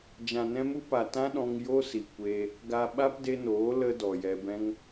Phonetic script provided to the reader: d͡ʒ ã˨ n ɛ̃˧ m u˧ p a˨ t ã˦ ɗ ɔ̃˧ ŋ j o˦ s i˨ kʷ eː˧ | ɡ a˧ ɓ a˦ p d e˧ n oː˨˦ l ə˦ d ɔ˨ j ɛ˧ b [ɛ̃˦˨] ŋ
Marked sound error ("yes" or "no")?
yes